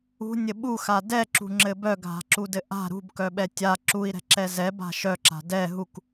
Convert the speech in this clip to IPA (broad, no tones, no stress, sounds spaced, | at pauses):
ṳ nʲ ɘ ɓ u x a d ɛ ǁ ṳ ŋ͡ǁ ɘ b œ ɡʱ a̤ ǁ u d ɘ ʔ a̤ ɾ ṳ b k œ ɓ ɛ tʲ a ǁ u i̯ ɾ ɛ̤ ǁ ɛ z ɛ b a̤ ʃ œ ǁ a̤ d ɛ ɦ u k